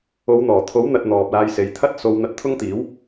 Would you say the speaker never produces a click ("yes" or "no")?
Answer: yes